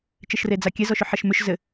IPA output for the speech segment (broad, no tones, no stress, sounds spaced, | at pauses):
t͡ʃ ɘ ʃ r e d͡z a kʲ ɛ z ɔ ʃ ʏ ħ ɐ ʃ m ʏ ʃ z ɘ